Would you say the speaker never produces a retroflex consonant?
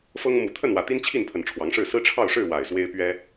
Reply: no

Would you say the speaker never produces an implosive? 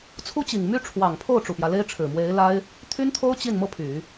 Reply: yes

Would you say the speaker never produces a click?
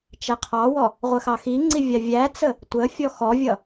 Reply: no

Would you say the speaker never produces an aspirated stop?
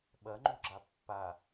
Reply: yes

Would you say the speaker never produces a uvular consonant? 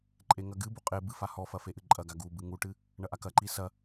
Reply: no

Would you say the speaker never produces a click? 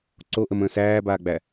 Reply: no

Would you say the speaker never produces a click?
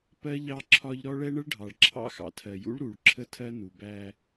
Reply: no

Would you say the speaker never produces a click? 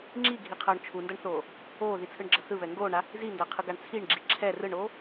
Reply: no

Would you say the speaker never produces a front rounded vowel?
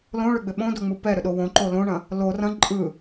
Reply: no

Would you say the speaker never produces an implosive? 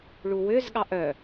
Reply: no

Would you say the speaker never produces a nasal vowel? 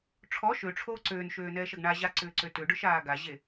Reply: yes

